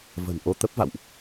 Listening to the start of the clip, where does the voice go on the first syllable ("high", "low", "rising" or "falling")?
low